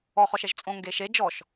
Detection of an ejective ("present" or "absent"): present